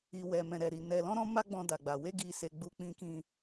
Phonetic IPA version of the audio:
i˧ w ɛ˧ m ɛ̃˧ ɾ ɛ˧ ɾ i˧ n ɛ˧ l ɔ̃˦ ɾ ɔ̃˦ m a˦ ɡ͡b ɔ̃˦ d a˧ ɡ͡b a˧ w e˦ ɡ i˧ s e˧ ɡ͡b u˧ k͡p ĩ˧ k ĩ˧

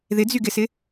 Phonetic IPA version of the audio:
ð ɪ d͡z y ɡ ɪ s ɪ

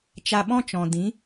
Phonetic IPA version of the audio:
t͡ʃ a˧ ɓ ɔ̃˦ t͡ʃ ɔ̃˨ d ĩ˨˦

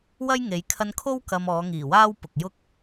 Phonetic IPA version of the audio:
w ɐ˥ j ŋ e˨˧ j kʰ ɐ˧ n kʰ o˥ w k ɐ˧ m ɔː˨˧ ŋ iː˨˩ w aː˥ w p ʊ˨ k̚ j ʊ˥ k̚

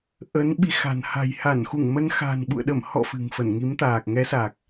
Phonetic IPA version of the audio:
ʔ ə˨˦ n ɓ i˨˦ x a̤˨˩ n h a̤˨˩ j h a˧˩ n x u˧˩ ŋ m ə˧ n x a̤˨˩ n ɓ ṵ˧˨ ə̯ ɗ ə˧˩ m h ɔ̰˧˨ f ɨ̤˨˩ ŋ f ə˧˩ n ŋ i˨˦ m t̪ aː˨˩ k̚ ŋ ɛ˨˦ s a˨˩ k̚

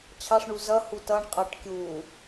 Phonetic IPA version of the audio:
t͡ɕʰ ɑ ʂ ɳ u z ʌ h u t ʌ ɳ qʼ ʌ ʈ kʲ u

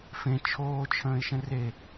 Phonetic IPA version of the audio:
f ẽ t͡ʃʰ oː t͡ʃʰ ə̃ː ɪ̯ ʃ ə̃ r e

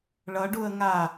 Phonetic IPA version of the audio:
ɭ ʌ ɖ u ə̯ ŋ a

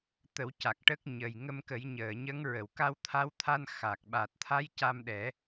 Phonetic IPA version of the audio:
t̪ ə˨˩˦ w c a˨˩ k̚ ʈ ə˦˥ k̚ ɲ ə˨˩ j ŋ ə˧ m k ə˨˩˦ j ɲ əː˨˩˨ ɲ ə˧˥ ŋ ɹ ə˨˩˨ w k a˧ w t̪ʰ a˧˥ w t̪ʰ a˧ n x a˨˩ k̚ ɓ a˨˩ t̚ t̪ʰ a˧˥ j c a˧ m ɗ ɛ˨˩˦

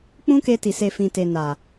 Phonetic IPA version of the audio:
k͡p ũ˦ k e˧ t i˨ s e˨ f ĩ˨ t e˨ n a˨

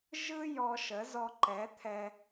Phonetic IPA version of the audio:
ʒ ɯ˥ j ɔ˧ ʃ ə˩˥ z ɔ˧ ǃ ɛ˩˥ t̪ʰ ɛ˧

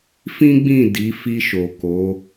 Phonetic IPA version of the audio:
f ĩ˦ ɡ͡b ĩ˦˨ d i˨˦ f i˧ ʃ o˨ k o˨˦

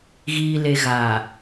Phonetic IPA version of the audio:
ɣ iː˨ l e˨ ɣ aː˨

